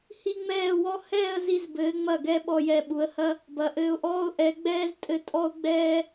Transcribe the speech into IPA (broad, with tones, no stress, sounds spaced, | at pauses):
h i˥ ŋ͡m ɛː˥˧ w ɔ˥ h ɛː˥˧ ə̯ z i˧ z b ɘː˩˧ ŋ͡m ɐ˧˩ ɡ ɛ˧ ɓ ɔ˧ j ɛ˧˩ ɓ u˩˧ ə̯ h ɐ˥ | b ɐ˩˧ ʔ ɘː˧ ʊ̯ ʔ ɔː˥ ʊ̯ ʔ ɛ˩˧ ɡ͡b ɛː˥ z tʼ ɘ˥˧ tʼ ɔ˥ ʊ̯ ɡ͡b ɛː˥